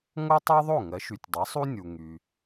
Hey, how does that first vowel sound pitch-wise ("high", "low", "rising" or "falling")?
high